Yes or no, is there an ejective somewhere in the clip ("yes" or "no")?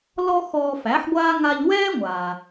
no